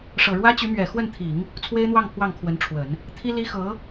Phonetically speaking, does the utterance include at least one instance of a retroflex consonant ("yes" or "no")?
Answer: yes